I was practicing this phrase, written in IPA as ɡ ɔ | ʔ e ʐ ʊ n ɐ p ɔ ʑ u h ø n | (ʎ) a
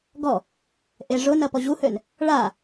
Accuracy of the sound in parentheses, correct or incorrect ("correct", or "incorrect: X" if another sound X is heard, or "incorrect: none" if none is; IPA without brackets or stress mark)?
incorrect: ɭ